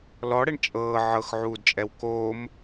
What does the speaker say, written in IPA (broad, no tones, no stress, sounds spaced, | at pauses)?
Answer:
l ɔ ɽ ɛ ɳ t͡ʃʼ ɤː ʕ ɤ x ʕ uː d t͡ʃʼ ɛ w k oː m